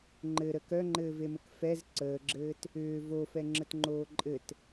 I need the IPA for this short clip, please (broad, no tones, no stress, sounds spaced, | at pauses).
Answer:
ŋ͡ǃ ɘ ɾ ə k œ ŋ͡ǃ ɘː v e m ɘ k f ɛ z ǀ əː ɡ͡ǁ ɘː t | ʏː v o f ɛ ŋ͡ǁ ə t ŋ͡ǃ oː ǃʼ ɘ t